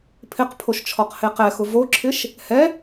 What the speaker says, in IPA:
pʰɪqpʰoʃt͡ʃʰɔqhe qɛxʊ voǁʰɪʃ | hɛ

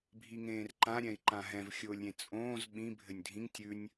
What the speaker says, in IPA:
bʱiŋẽːrǃã ɾʲɛ̃i̯ǃãɦɛ̃v xʲʊːlʲɾʲẽt͡sʼõːz ɓĩ bʱɘnʲdʱĩŋ tʲʉnʲ

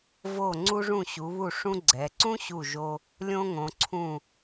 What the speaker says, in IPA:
vo˧˩ ŋ͡ǀu˧ʐũ˧˩ ɕu˩˧βu˧˩ʂũ˧ ɡ͡ǀɛ˩˧ ǀũ˥ɕu˧˩ʒo˧ | lʲõ˧ŋõ˩˧ǀʰũ˧˩

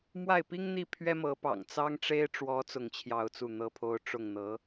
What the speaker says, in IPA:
mwa˥˩ɪ̯ pi˥ŋn̪i˥˩ pʰɥɛ˥mɤ˧˥pɑ̰˨˩ŋ t͡sɑ˥ŋʈ͡ʂe˥ɪ̯ ʈ͡ʂwɔ˧˥ t͡sʊ˥˧ŋt͡ɕʰjɑ˥˧ʊ̯t͡su˥˩ n̪ɤ˥pʰo˥ʊ̯ ʈ͡ʂʊ˥˩ŋ n̪ɤ˧˥

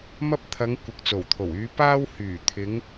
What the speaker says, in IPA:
mɐ˧p̚t̪ʰɐ˨˧ŋ kʷɪ˨k̚t͡so˨˩wt̪ʰo˨˩wyː˨˧ paː˧whyː˨˩ t̪ʰɪ˨˧ŋ

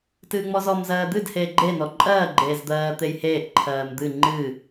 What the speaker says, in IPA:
tɨːŋ͡mɔzɔm zɜːd̪ɨd heːɡ͡ǃe nɔǃʼɜː ɡ͡ǃeːzd̪ɜː t̪ejheːʔ ǃʰɜːmd̪ɨ ŋ͡ǃɨ

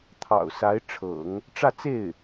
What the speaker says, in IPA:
t̪ʰɑ̰˨˩ʊ̯sa˧˥ɪ̯ʈ͡ʂʰɤ̰˨˩˦ŋ | ʈ͡ʂä˥˧t͡se˥˩ɪ̯

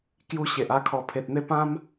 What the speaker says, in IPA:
kju˧ ɕe˨ʔa˦kʰɔ˧ pʰe˨t̚n̪e˥˧ pã˦m

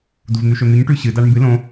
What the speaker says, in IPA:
duvn̪ʉʃɵn̪ʉɲ ʈʉɕɨ daɳmbɨ lõ

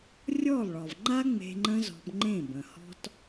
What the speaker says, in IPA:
rʲɔ˦˨lˠɭɒ˨v ŋ͡ǃa˦ŋ͡me̤˧ ŋ͡ǃə̃˦zɔ̤˧b ŋ͡ǃẽ˦˨bə̃˨ hɔ̤˦t

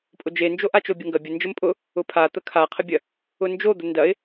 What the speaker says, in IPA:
pʼʊd͡ʒend͡ʒo ʔat͡ʃobʲəŋɡɐ bʲə nd͡ʒəmpʼʊ | ʊpʰa t̪əkʰaqʰəbʲɐ | ʊnd͡ʒod̪ə ndɐɪ̯

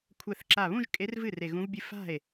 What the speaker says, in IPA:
kʷʰɛ˧˩θǁa˧˩βũ˥˧ʒ kʼe˧˥rvɨ˥˩ re˧˩ɣũ˧˥vbʲɨ˥˩ fa̤˥˩e̯

